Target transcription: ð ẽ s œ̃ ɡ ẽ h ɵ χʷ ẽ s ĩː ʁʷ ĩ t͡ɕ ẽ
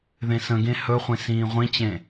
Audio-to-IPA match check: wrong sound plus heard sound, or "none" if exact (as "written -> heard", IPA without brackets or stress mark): œ̃ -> ə̃